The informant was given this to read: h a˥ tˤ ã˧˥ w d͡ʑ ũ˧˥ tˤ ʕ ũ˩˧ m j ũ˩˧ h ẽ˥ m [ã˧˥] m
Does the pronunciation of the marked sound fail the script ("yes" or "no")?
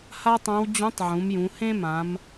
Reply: yes